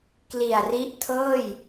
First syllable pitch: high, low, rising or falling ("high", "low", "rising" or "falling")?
low